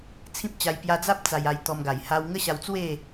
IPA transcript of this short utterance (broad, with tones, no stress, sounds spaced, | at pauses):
t͡sʰ ĩ˦ p̚ t͡ɕ a˧ j p j a˧ d͡z a˦ p̚ t͡s a˧ j a˧ j t̪ ɔ˧ m ɡ a˨˩ j h a˧ w ŋ ə˦ ɕ a˧ w t͡s w e˥˧